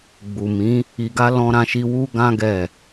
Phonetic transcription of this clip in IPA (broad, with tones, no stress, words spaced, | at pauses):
ɡ͡bu˨ mĩ˨˦ | i˧ɡa˦ lɔ̃˦ɾã˦ʃi˦ wu˦ɡã˦ ɡɛ˦˨